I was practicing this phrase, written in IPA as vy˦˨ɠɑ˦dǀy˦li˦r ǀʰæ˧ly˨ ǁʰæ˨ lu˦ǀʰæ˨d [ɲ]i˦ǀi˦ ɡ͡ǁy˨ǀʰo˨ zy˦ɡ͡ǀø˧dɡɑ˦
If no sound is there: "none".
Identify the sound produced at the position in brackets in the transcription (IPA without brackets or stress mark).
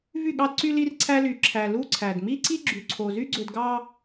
m